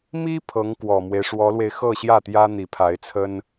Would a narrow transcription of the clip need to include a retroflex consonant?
yes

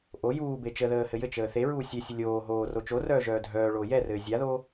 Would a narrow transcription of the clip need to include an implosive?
no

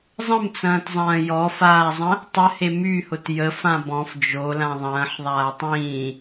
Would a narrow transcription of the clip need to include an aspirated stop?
no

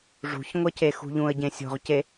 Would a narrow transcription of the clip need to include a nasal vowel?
yes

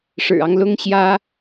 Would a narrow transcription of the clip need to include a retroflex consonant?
yes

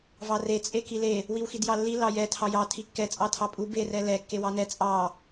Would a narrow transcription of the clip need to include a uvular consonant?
no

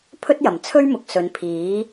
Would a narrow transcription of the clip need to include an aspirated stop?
yes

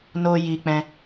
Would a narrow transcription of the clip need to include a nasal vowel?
yes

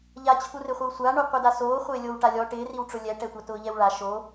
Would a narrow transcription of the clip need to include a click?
no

